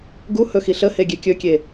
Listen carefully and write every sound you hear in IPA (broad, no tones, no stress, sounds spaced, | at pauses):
ɡ u h ɵ x i ɬ ə h e ɡʲ e kʲ ɵ kʲ e